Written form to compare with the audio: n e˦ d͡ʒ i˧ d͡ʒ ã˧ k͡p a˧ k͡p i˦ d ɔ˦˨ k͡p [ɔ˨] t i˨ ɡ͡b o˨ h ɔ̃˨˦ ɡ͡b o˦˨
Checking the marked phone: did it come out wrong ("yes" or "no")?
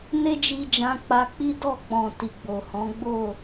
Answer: yes